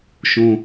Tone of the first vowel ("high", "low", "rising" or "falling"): low